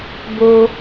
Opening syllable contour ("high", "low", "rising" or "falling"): low